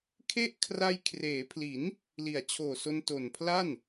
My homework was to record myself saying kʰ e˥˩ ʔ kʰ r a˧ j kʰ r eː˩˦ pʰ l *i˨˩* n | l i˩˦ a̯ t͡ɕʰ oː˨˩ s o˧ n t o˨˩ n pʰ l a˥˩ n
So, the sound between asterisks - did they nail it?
no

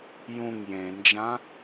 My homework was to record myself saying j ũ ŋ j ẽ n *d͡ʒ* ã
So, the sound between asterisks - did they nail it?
yes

